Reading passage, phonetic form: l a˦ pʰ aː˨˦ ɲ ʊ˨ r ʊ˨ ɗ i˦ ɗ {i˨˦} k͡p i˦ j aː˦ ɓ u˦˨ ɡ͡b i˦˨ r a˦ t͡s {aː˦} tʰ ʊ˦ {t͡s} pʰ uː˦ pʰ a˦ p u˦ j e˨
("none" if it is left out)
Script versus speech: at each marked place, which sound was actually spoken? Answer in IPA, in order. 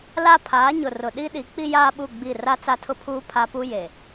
i˨˦, a˦, none

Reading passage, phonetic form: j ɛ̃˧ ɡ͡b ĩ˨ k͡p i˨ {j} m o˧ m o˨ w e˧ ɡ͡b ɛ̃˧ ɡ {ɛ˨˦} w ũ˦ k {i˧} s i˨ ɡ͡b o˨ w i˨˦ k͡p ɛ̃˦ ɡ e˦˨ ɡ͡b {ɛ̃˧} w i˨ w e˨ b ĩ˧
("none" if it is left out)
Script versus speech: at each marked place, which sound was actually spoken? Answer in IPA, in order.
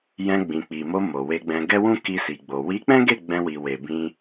none, ɛ˦, i˧, ɛ̃˧

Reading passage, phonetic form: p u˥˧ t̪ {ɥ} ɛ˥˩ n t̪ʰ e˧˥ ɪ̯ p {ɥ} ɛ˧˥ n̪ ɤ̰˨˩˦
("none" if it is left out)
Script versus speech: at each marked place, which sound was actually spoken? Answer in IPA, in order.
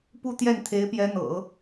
j, j

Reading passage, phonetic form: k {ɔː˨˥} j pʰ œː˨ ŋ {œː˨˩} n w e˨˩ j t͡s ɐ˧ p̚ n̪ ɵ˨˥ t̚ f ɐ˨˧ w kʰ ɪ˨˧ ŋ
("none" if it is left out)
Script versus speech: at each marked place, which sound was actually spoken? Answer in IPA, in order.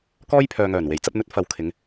ɔː˥, œː˨˩

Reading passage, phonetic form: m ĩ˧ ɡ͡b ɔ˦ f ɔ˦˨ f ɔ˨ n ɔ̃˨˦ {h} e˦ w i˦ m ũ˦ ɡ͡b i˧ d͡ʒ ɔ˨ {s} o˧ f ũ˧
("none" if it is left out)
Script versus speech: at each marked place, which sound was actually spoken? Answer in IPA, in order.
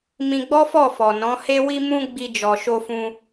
h, ʃ

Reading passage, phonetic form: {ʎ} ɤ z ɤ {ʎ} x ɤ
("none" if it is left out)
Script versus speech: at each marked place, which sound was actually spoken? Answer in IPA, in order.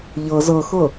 ʎ, none

